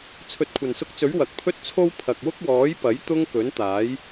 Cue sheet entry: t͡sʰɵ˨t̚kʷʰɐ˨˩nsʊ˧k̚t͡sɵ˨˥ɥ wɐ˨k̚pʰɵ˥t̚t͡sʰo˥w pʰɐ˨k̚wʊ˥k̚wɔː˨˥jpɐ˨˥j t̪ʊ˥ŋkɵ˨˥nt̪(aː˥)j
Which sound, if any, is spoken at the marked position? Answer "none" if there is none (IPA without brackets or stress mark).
aː˨˥